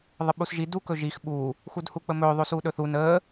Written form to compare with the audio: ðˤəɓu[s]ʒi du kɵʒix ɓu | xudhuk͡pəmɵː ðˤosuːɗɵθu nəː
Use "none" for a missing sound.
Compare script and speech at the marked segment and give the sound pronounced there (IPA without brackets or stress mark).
s